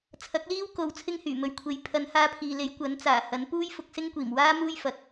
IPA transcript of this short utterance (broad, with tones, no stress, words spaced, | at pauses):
t͡sʰɐ˨˥k̚liː˥wko˨˧w t͡sʰɪ˥ŋhyː˨˩ mɵ˨ɥkʷʰe˨˥j pʰɐ˨˧nhaː˧pʰiː˨le˨˥j kʷɐ˨˥nt͡saː˨˩ hɐ˨˥n puː˥jfʊ˧k̚sɪ˥ŋkʷiː˨˩m waː˥muː˥j fɐ˨k̚